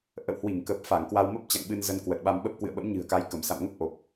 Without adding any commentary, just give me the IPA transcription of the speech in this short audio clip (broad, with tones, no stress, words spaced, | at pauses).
ʔə̰˧˨whwi˧˩ŋkə˨˩p̚ fa˧˩ŋkwa˧w mə˦˥p̚t͡ɕa̰˧˨ŋɓɨ˧n zə˧nkwə˨˩t̚ɓa˧mɓə˦˥p̚ kwɨ̰˧˨ə̯ɓə̰˧˥mɲɨ̤˨˩ə̯ka˨˦j kə˧˩msa̰˧˨m ŋə˦˥p̚ ʔo˨˩p̚